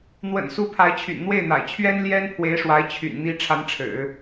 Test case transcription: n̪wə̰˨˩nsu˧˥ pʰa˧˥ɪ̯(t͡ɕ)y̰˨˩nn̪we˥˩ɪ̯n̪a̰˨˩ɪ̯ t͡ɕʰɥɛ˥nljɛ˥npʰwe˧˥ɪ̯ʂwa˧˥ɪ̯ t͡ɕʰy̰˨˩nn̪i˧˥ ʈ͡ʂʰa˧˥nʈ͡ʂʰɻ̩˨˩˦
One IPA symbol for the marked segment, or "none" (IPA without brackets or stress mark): t͡ɕʰ